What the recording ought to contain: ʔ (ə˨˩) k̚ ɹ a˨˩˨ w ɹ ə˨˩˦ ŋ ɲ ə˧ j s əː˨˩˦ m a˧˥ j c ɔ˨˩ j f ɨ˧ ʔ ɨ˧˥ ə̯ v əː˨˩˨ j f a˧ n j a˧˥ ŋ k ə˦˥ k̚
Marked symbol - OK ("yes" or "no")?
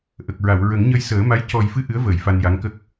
yes